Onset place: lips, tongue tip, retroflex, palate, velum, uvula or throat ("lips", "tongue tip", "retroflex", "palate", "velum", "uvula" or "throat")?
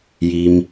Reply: palate